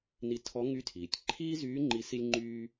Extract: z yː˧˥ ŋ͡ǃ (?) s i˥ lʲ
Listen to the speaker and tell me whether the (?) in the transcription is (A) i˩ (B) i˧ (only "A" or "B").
B